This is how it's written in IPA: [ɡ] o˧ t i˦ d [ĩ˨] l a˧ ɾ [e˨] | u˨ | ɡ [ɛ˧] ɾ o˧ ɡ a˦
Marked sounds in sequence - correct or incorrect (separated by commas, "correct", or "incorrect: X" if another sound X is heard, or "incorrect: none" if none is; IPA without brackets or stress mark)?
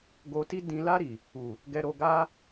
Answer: correct, incorrect: ĩ˧, incorrect: i˨, correct